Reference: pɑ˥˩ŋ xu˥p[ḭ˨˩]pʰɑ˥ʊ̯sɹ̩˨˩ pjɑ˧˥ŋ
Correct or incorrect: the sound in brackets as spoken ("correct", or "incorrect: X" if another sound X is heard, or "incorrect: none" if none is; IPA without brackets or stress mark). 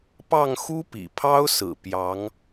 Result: correct